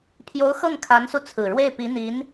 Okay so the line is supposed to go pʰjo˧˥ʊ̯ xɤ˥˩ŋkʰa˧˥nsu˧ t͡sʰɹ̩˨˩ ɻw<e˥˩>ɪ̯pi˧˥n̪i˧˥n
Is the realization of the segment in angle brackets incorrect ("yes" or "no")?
no